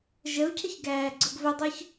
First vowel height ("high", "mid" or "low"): mid